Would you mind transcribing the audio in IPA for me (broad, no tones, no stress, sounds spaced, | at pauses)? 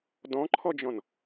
d ɔ̃ ǃʰ ɔ d͡ʒ ɔ̃ n